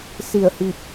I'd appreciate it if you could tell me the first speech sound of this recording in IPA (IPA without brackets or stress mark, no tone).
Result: s